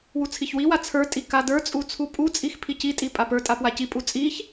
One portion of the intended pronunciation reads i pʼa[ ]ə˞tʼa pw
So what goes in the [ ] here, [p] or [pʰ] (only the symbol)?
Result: p